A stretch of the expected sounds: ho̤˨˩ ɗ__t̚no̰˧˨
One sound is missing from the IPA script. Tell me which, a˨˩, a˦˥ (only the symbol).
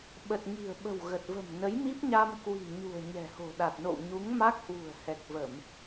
a˨˩